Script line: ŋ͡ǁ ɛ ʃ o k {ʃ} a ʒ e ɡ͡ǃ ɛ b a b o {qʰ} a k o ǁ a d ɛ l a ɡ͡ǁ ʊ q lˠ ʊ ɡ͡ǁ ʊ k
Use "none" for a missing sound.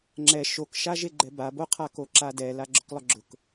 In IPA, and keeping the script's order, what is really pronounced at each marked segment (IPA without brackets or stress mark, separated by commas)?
ʃ, qʰ